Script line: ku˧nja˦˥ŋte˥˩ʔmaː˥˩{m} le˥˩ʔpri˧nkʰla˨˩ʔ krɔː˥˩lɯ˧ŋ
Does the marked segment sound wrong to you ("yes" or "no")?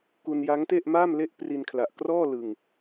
no